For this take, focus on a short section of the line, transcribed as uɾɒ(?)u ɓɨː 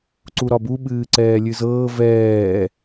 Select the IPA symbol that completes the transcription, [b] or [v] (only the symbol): b